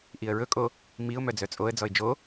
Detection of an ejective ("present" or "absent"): present